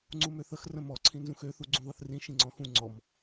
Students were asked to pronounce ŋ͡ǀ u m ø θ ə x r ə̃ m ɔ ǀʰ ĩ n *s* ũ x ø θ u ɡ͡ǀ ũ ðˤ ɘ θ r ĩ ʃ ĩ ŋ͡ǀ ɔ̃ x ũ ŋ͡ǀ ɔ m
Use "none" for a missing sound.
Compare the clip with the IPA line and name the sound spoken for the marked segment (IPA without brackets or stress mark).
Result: z